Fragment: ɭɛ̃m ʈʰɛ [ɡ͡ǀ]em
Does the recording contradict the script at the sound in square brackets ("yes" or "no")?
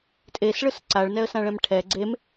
no